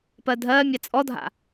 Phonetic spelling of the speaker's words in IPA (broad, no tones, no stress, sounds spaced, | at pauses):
p ɜ dʱ ɜː mʲ a t͡sʼ ɔ dʱ a̰